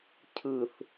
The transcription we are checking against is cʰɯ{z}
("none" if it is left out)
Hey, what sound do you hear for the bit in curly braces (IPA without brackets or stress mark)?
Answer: θ